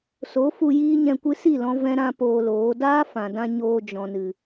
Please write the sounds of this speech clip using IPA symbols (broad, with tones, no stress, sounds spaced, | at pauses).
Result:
s o˨˦ f u˧ j iː˦ ɲ ɛ̃˧ kʷ ɨ˦ s i˦˨ l ɔ̃˧ v ɛ̃˧ ɾ ã˧ p oː˧ l oː˨˦ d aː˦ f ã˨ d ã˧ ɲ oː˧ d͡ʒ ɔ̃˨ n ɨ˨